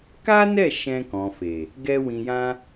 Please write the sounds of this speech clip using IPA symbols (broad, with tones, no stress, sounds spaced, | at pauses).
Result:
k a˦ n ɛ˦˨ ʃ ɛ̃˧ k ɔ̃˨ f e˨ | ɡ ɛ˦ w ĩ˧ j ã˦